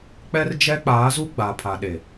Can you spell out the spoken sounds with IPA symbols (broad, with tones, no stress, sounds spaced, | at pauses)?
k͡p ɛ˦ r d͡ʒ ɛ˦ k͡p aː˨˦ z u˦ ɡ͡b a˨ pʰ a˨ ɗ e˨